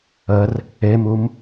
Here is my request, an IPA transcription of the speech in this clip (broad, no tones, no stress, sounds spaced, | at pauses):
ə r | e m u m